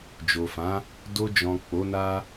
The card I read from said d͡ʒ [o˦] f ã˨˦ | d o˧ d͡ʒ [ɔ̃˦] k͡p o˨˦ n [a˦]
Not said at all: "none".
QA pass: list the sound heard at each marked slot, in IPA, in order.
o˨, ɔ̃˨, a˦

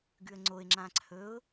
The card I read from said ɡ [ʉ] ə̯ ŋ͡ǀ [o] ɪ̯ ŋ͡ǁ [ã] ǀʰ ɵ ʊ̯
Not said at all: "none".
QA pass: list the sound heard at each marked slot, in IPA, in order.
ʉ, o, ã

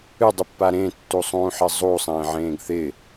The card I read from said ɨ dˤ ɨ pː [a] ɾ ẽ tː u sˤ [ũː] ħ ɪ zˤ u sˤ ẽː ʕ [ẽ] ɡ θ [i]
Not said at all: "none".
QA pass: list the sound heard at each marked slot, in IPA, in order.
a, ũː, ẽː, ɪ

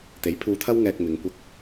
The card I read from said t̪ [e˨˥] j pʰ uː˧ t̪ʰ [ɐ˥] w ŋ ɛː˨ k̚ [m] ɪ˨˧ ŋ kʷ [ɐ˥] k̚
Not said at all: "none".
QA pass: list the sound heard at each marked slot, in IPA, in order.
e˨˥, ɐ˥, m, ɐ˥

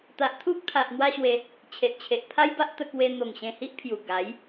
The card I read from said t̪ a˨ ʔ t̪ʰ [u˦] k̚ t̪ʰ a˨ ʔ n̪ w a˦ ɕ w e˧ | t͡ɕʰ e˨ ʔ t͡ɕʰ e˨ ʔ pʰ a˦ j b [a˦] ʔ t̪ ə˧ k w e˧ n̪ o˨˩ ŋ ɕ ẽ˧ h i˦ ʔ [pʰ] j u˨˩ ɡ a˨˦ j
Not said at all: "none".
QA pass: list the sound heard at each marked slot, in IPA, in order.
u˦, a˦, pʰ

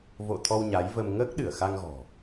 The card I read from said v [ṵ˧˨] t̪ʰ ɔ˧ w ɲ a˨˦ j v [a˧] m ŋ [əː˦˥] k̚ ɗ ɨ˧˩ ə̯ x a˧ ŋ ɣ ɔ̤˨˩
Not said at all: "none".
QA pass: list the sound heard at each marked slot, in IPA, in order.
o̰˧˨, ə˧, əː˦˥

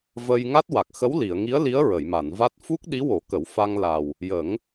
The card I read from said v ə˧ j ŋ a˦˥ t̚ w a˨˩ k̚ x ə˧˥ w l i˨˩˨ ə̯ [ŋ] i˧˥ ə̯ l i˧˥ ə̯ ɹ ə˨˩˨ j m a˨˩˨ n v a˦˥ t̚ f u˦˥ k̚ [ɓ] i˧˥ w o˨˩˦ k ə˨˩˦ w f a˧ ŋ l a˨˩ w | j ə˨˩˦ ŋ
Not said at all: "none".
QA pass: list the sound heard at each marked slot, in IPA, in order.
ŋ, ɗ

